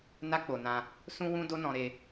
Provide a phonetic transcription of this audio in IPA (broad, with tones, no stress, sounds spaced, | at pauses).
n a˦ k͡p o˧ n ã˦ | s ũ˦ w ũ˦ d o˦ n ɔ̃˧ ɾ e˧